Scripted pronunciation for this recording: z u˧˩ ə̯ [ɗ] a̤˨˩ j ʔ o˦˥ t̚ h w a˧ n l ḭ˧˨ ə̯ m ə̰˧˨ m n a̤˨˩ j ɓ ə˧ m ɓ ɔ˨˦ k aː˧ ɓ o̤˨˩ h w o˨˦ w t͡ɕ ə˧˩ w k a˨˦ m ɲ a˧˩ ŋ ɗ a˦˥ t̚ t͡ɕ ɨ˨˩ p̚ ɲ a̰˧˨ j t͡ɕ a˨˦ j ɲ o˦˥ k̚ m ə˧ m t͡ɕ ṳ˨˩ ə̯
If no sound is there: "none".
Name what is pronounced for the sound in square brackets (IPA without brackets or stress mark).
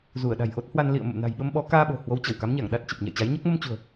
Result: ɗ